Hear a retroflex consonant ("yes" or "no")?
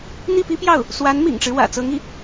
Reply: yes